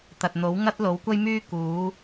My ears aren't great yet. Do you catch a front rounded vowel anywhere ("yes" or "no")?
yes